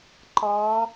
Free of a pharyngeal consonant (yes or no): yes